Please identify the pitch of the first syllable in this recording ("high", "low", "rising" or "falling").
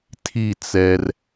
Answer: falling